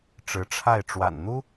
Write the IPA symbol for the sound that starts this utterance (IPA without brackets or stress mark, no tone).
ʈ͡ʂ